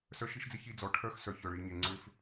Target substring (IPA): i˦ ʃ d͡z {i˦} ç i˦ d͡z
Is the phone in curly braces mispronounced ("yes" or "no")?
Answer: yes